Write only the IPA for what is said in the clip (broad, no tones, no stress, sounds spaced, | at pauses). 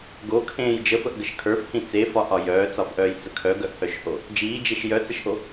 ɡ o kʰ ẽː j d͡ʒ ə f ə ʔ ɡ ə ʃ kʰ ə˞ f h ĩ t͡s e f ɒ ʔ ɒ j œː t͡s ɒ f ʔ œː j t͡s ə kʰ œ ɡ œ ʔ h œ ʃ h o | d͡ʒ iː d͡ʒ e ʃ j œ t͡s ə ʃ ʔ o